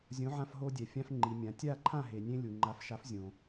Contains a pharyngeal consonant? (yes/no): yes